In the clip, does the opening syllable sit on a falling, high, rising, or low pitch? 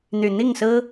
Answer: low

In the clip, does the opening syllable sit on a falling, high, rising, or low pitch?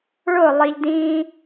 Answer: falling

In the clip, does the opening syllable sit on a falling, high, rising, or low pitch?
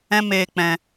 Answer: high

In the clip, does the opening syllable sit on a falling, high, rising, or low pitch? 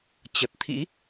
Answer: low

